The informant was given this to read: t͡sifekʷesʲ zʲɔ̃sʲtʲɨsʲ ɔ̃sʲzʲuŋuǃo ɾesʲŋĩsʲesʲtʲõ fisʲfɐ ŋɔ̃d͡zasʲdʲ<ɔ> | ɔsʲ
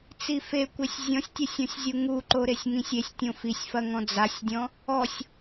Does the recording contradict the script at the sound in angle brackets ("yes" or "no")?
yes